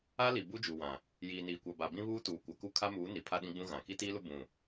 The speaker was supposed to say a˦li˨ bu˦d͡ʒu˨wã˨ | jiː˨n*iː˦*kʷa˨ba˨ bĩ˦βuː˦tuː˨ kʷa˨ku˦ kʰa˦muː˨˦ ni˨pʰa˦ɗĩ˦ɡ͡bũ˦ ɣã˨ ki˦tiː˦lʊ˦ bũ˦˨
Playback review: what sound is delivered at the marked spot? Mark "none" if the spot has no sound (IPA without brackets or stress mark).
iː˨